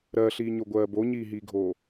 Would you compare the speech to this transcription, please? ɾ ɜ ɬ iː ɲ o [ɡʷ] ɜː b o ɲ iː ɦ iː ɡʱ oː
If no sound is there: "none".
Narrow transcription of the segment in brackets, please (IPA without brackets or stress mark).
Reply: ɡʷ